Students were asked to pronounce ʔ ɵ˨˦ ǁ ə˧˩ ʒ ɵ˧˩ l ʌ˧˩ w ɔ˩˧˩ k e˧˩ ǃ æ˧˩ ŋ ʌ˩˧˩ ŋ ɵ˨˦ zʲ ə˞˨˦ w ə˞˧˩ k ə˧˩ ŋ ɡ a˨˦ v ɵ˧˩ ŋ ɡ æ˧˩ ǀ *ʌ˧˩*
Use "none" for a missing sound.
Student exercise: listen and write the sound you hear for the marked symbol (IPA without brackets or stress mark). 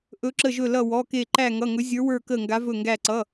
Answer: ʌ˩˧˩